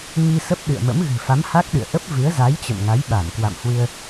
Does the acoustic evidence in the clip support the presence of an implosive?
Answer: yes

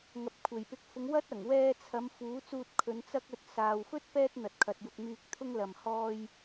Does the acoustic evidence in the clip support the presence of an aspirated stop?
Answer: yes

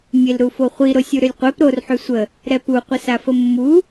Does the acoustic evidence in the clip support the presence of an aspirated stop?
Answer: no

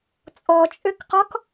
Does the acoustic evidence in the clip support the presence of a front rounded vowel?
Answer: yes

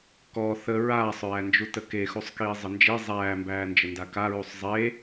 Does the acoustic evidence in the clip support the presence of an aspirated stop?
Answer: no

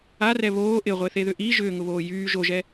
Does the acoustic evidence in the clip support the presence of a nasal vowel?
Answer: no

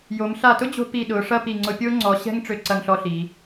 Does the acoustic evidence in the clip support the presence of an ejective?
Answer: no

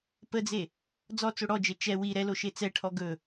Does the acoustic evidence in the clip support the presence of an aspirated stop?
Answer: yes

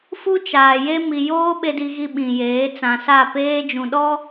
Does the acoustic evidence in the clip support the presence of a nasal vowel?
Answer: yes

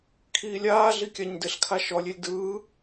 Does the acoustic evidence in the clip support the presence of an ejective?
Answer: no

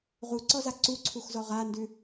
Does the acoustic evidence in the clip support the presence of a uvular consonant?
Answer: yes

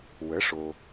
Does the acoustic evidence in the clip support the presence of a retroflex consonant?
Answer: yes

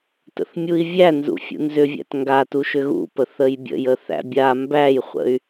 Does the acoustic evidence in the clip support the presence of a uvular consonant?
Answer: yes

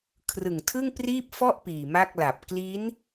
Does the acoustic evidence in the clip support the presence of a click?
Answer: no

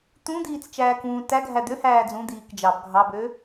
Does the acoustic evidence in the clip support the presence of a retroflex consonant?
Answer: no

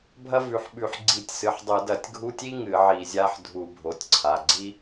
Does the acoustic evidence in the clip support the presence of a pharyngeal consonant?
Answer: yes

